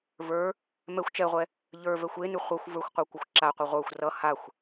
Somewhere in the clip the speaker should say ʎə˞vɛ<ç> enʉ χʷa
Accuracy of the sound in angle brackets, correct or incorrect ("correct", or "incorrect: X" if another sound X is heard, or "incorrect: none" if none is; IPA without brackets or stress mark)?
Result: incorrect: xʷ